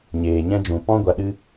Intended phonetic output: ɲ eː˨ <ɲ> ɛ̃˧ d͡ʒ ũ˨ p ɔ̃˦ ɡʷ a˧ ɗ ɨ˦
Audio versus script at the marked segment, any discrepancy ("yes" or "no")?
no